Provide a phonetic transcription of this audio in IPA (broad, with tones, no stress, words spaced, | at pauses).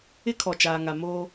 ɪ˦ kʰɔ˨t͡ʃaː˨ŋa˨ moː˦